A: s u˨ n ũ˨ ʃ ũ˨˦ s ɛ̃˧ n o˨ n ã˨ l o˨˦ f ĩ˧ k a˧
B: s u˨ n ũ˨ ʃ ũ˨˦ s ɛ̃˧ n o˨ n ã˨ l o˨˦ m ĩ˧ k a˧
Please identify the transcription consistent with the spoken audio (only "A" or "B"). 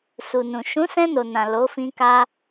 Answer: A